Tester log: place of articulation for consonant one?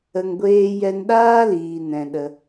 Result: velar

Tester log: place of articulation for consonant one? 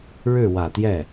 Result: retroflex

